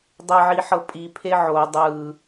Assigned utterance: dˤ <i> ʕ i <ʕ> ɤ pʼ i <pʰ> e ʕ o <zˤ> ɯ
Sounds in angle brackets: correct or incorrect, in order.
incorrect, incorrect, correct, incorrect

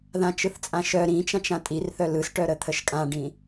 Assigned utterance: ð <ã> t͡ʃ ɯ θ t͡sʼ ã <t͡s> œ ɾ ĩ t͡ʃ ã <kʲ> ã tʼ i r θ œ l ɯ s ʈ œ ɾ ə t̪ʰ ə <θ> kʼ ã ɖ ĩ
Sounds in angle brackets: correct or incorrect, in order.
correct, incorrect, incorrect, incorrect

